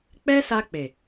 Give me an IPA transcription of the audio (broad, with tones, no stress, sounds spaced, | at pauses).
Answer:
k͡p ɛ˦ s a˧ k͡p e˨